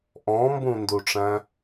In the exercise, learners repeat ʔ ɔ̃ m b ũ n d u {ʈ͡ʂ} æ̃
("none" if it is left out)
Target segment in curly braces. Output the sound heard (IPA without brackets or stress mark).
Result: ʈ͡ʂ